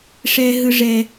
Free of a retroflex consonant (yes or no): no